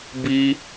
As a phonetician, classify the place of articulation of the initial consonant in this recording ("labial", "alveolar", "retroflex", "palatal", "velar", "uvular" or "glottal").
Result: labial